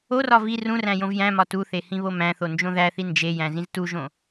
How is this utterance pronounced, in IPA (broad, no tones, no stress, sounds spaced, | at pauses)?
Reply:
o r ɒ v i r ũ r æ̃ j õ v j æ̃ m ɒ t u θ e h ĩ β o m æ̃ θ o n d͡ʒ õ ð æ θ i n d͡ʒ e j æ̃ z ĩ z t u ʒ õ